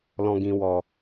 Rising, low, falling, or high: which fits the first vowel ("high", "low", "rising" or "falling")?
low